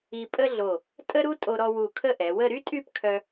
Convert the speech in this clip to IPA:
i˧pʼə˥ɮo˧˩ | tʼə˥ɾu˥ tʼo˧ɾɔ˧wu˧˩ kʰə˥˧ʔɛ˩˧wə˥˧ ɾy˥tʼy˥˧pkʰœ˧

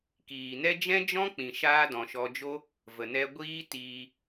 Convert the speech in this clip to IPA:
kiː˨nɛ˦ d͡ʒɛ̃˦d͡ʒɔ̃˦ k͡pĩ˨ʃaː˧dɔ̃˨ ʃɔ˧d͡ʒo˦ | və˨nɛ˧ ɡʷiː˦tiː˧

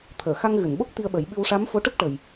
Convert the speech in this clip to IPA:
t̪ʰəː˨˩˨xa˧ŋ ɣɨ˨˩˨nɓo˦˥k̚t̪i˧ə̯ ɓə˨˩˦jɓɨ˧wʂa˧˥mfo˧˥ ʈə˦˥k̚ʈə˨˩j

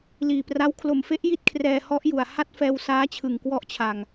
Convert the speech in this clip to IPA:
liː˨˩pra˦˥w kʰlo˨˩mfe˦˥ʔ ji˥˩t̚kʰrɛː˧hɔ˦˥ʔ ju˨˩a̯ ha˥˩t̚fɛː˧w saː˦˥t͡ɕʰɯ˨˩ŋ kwɔ˦˥ʔt͡ɕʰa˨˩ŋ

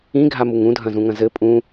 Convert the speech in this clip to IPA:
ĩɡʱamuŋ ũdʱɐ̃zũŋɐ̃ zɘ pʼũ

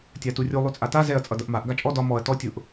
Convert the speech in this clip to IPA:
tʲaturʲu lˠʉt͡sʼata zɛɐ̯ t͡sʼʌdʌʔmaʔ ɡat͡ʃʼɔ dɒ mɔɐ̯ tɔ tʲʊʔ

